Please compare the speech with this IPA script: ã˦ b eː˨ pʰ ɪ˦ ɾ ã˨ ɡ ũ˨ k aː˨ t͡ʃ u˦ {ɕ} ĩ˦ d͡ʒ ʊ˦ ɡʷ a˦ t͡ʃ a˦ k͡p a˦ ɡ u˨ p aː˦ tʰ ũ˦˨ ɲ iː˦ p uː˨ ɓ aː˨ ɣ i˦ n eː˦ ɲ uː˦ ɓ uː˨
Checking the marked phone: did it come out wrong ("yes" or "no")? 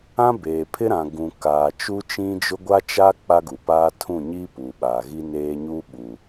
yes